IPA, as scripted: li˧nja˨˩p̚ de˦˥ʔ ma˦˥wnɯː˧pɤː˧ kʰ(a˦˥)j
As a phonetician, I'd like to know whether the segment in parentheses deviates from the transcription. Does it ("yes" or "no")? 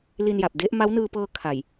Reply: yes